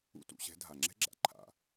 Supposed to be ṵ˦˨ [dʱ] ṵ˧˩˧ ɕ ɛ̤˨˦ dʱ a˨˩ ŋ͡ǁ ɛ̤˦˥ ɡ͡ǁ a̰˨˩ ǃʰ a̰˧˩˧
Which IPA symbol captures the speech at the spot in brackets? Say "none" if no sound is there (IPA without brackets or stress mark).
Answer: t